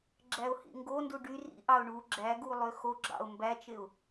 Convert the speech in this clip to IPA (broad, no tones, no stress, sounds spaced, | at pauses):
ɡ͡ǁ æ ʊ̯ h ḭ ŋ ɡ o n d u ɖ y r ḭ ʔ ɑ ʊ̯ ɳ u ɡ͡ǁ æ ɡ u lˠ ø x o ɡ͡ǁ ɑ̰ ʊ̯ m b æ t͡ʃ e ʊ̯